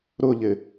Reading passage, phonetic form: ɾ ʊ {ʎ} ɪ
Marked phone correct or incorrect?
correct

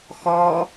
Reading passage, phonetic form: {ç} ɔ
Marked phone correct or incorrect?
incorrect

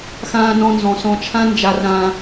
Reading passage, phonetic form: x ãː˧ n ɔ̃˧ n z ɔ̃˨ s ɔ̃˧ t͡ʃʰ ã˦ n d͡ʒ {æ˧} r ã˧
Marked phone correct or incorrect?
incorrect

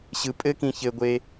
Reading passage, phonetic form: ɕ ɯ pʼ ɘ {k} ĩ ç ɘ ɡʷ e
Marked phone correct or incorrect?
correct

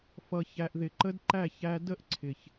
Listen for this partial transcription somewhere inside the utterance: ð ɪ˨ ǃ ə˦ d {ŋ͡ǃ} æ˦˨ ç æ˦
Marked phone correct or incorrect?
incorrect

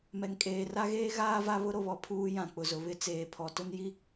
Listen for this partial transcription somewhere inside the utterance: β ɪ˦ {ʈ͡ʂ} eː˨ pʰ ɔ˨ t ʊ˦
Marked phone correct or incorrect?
incorrect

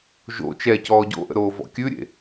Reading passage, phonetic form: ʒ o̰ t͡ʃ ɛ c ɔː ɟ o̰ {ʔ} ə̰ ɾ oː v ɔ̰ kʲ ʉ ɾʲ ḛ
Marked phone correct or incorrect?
correct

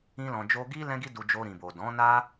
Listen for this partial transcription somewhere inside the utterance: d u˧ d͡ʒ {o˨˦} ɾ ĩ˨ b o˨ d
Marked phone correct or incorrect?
incorrect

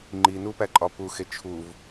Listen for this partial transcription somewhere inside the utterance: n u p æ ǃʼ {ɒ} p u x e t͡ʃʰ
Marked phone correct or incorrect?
correct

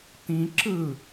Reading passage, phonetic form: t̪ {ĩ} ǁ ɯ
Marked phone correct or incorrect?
correct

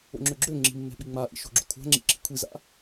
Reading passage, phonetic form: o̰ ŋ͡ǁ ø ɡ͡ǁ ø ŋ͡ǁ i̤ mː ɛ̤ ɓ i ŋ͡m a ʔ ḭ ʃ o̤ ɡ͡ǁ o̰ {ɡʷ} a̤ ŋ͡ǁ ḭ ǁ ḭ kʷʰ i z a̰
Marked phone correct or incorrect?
incorrect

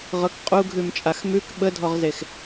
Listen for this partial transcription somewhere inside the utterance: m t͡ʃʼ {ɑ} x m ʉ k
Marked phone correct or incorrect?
incorrect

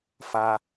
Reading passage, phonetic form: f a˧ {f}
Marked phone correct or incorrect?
incorrect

